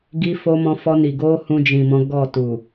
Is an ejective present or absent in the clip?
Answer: absent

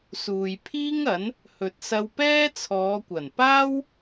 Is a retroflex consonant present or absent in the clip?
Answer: absent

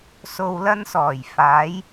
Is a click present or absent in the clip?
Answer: absent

